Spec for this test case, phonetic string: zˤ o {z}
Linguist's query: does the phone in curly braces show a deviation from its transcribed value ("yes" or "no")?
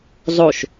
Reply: yes